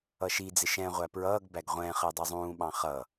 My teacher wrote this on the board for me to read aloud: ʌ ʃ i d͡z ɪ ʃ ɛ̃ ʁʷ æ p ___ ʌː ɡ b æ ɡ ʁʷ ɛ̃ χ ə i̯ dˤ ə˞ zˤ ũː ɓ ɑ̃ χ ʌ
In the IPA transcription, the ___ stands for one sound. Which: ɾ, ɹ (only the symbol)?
ɹ